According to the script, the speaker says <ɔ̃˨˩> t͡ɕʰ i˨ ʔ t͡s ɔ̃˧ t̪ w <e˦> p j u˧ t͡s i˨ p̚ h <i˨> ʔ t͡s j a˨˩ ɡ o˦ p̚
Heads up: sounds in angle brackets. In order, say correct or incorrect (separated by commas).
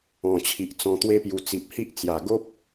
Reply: correct, correct, incorrect